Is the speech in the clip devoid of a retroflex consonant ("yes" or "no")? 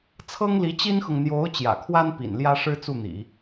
no